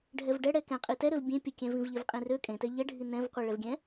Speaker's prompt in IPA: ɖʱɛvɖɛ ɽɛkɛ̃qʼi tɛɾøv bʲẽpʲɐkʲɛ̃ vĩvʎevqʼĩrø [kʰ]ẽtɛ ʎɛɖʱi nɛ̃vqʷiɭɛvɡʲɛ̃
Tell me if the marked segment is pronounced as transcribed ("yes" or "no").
no